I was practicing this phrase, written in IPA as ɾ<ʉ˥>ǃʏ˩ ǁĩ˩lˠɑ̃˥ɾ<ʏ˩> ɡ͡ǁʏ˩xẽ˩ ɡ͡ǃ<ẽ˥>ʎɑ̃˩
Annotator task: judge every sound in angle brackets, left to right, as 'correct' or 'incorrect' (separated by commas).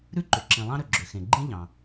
correct, correct, incorrect